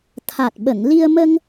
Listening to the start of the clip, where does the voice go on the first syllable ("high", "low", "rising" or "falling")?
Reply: low